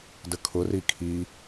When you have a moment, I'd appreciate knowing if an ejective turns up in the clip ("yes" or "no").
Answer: no